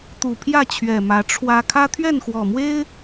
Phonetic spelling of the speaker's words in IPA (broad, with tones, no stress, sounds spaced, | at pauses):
t̪ u˨˩ pʰ j ä˥˨ t͡ɕʰ ɥ ɛ˨˩ m ä˨˦ ʈ͡ʂʰ w ä˦ kʰ ä˦ t̪ʰ ɥ ɛ˥˨ n x w ɔ˨˩ m w e˦ ɪ̯